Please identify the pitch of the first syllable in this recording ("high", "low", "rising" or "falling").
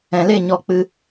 low